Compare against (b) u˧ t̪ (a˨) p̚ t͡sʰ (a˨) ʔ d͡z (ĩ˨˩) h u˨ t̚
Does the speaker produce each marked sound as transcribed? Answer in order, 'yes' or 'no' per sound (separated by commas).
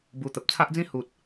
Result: yes, no, no, no